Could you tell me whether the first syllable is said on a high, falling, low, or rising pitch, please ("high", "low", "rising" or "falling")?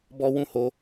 high